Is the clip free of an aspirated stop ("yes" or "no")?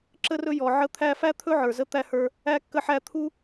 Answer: no